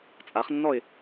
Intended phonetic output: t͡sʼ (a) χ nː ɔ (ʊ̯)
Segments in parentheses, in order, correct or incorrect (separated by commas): correct, incorrect